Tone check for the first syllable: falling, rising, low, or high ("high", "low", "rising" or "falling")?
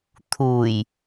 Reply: low